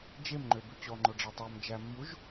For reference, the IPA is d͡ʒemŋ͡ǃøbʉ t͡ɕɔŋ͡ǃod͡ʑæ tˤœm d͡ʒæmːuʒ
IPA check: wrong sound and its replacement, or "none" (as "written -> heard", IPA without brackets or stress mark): d͡ʑ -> ɖ͡ʐ